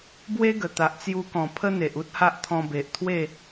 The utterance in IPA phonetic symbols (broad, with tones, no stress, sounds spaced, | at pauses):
b w e˦ ɡ ə˨˩ t̪ a˨ ʔ t͡s j u˧ k ɔ̃˨˩ pʰ ə˦ n̪ e˨ ʔ u˦ t̚ h a˦ ʔ t̪ʰ ɔ̃˧ b e˨ ʔ t̪ʰ w e˥˧